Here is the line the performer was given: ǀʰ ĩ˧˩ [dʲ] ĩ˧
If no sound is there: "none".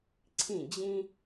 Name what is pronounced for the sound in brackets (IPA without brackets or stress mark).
d͡ʑ